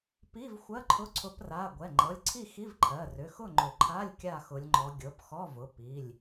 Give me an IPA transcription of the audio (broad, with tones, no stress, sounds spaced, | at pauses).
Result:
p i˧˥˧ v xʷ ɜ˧˥˧ ǃʰ ʊ˧˥˧ ǀʰ ʊ˨˦ p r a˩˧˩ ɡʷ ɛ˩˧˩ ŋ͡ǃ ɤ˩˧˩ lʲ ǀʰ i˥˨ x i˧˥˧ v ǃʰ ɜ˩˧˩ r ʏ˩˧˩ x ʊ˥˨ ŋ͡ǃ ʏ˨˩˦ ǃʰ a˧˥˧ lʲ kʲ a˥˨ x ʊ˨˦ lʲ ŋ͡ǃ ɔ˨˦ ɡʲ ɤ˩˧˩ p x ɔ˧˥˧ v ʊ˩˧˩ p i˩˧˩ lʲ